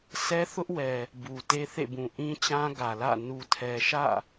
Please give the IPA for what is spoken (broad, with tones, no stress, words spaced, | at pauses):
sʰɛ˦θʊ˦ʔwɛ˨ | bu˨te˦θḛ˦˨bũ˨ ʔĩ˦t͡ɕã˦ ɡä˨lä̰˦˨ nu˨tʰɛ˨ʃä̰˦˨